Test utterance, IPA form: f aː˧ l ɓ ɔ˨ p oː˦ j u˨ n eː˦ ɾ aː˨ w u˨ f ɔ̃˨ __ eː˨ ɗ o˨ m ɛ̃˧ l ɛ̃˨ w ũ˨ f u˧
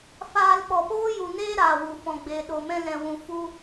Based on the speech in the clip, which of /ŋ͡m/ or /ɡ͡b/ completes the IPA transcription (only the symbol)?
ɡ͡b